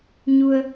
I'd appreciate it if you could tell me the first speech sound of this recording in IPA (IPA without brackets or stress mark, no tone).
ɲ